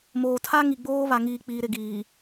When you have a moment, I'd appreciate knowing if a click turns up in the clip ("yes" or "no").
no